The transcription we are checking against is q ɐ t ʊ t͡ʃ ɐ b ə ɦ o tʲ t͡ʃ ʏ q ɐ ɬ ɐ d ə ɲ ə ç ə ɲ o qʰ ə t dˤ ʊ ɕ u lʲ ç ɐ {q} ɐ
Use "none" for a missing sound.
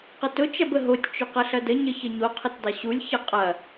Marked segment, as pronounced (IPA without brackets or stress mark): qʼ